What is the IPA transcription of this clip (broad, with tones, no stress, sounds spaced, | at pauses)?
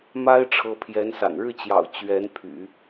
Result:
m a˥ ɪ̯ ʈ͡ʂʰ ɤ˧˥ pʰ j ɛ˧˥ n s a̰˨˩ n ɻ ɻ̩˥˩ t͡ɕ j ɑ̰˨˩ ʊ̯ t͡ɕ ɥ ɛ˧˥ n pʰ y̰˨˩˦